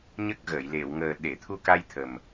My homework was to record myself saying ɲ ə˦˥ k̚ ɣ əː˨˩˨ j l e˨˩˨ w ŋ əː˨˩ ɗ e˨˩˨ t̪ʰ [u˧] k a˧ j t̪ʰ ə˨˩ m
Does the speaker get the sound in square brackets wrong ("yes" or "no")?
no